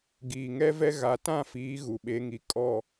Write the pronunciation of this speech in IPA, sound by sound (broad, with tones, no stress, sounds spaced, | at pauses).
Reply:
ɡ iː˨ ŋ ɛ˦ v ɛ˦ ɣ a˨ t ã˦˨ f iː˨˦ ɣ u˨ ɓ e˨˦ ŋ i˨ kʼ ɔ˨